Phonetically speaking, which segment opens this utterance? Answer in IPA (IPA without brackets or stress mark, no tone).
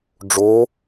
ɖ͡ʐ